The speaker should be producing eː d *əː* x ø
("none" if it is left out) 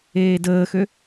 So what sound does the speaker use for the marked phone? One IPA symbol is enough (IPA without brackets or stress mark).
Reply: əː